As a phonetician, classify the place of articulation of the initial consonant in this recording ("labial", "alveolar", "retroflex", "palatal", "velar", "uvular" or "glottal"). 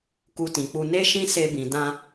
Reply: velar